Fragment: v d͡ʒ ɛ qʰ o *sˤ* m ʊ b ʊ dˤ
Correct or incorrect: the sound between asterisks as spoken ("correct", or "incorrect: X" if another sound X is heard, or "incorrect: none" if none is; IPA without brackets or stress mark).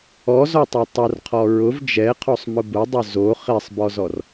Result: correct